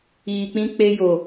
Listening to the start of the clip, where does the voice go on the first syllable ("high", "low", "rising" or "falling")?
low